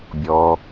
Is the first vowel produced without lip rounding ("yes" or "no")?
no